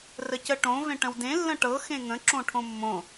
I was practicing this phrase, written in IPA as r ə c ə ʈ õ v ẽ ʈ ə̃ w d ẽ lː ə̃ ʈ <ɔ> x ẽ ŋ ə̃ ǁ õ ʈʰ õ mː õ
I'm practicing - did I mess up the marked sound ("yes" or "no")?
yes